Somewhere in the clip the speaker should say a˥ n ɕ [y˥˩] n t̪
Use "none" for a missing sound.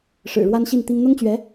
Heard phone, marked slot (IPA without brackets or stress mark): i˥˩